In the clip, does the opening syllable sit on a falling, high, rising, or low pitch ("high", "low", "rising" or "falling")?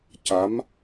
rising